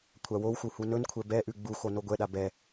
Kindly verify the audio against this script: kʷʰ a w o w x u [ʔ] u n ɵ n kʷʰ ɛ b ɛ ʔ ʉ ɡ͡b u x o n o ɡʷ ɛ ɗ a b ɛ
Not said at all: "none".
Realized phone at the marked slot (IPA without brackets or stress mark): h